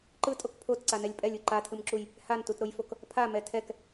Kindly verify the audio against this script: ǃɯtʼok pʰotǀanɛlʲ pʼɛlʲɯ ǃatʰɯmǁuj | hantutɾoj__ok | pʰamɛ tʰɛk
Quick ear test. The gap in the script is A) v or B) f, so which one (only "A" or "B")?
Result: B